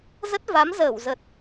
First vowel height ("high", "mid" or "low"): mid